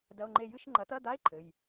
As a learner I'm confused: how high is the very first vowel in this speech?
low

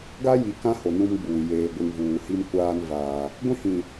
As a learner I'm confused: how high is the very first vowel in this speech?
low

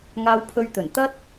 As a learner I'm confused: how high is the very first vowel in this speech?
low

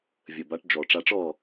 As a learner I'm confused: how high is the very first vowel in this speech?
mid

